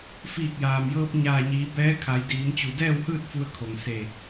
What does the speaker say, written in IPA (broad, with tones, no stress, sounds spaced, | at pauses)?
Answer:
f iː˧˩ k̚ j aː˩ m j ɤː˧ p̚ ɲ aː˧˩ ɲ iː˩˧ b ɛː˧˥ kʰ a˩˧ j d iː˩˧ m t͡ɕ u˩ d ɛː˥˨ w h ɯː˥˨ t̚ f u˧ ə̯ kʰ o˩ ŋ s e˧˩